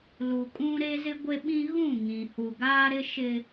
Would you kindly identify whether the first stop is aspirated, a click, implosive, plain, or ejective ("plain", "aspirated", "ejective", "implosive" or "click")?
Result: ejective